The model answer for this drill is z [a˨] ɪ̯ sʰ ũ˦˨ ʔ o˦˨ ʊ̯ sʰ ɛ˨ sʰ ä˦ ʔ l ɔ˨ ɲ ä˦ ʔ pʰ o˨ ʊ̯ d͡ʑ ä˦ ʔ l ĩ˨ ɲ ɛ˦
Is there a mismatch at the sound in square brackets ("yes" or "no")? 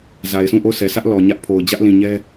no